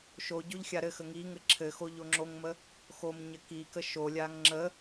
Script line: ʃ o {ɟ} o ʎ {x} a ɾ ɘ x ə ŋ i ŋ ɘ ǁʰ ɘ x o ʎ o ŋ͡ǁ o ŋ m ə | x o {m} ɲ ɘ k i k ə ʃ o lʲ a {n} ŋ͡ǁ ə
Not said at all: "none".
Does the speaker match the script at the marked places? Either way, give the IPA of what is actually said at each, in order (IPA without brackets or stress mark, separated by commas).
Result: ɟ, xʲ, m, ŋ